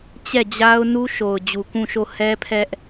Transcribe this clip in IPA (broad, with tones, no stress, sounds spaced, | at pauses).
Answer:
t͡ɕ ɛ˦˨ d͡ʑ a˦ ʊ̯ n u˦ ʃ o˨ ʊ̯ d͡ʑ u˨ k ũ˦˨ ʃ o˦˨ h ɛ˦ pʰ ɛ˦ ʔ